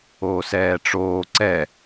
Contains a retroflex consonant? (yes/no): yes